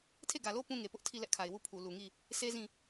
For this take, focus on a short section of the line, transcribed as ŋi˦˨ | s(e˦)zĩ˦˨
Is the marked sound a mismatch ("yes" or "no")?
no